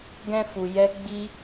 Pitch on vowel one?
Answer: high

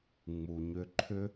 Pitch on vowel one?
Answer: low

